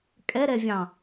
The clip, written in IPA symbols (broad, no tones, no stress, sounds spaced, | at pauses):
kʼ ɛ ɾ ɛ vʲ ɑ̃